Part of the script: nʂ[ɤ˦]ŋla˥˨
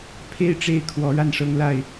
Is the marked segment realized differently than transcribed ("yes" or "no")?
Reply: no